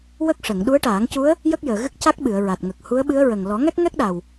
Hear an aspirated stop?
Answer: no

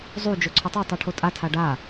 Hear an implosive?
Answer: no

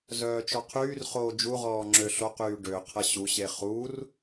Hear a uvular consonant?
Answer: yes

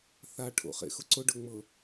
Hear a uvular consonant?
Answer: yes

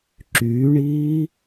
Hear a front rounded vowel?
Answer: yes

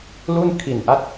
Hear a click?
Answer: no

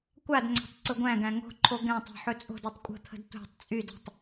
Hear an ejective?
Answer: yes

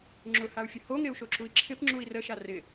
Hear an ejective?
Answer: no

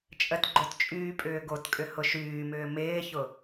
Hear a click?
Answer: yes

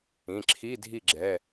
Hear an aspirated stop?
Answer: yes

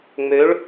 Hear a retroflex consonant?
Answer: yes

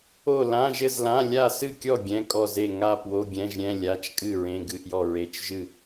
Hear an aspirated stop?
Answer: no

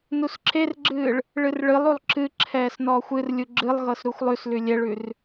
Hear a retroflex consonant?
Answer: yes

